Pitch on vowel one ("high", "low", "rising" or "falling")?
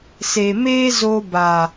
low